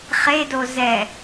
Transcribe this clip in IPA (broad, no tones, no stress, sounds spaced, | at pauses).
χ e d o z ɛ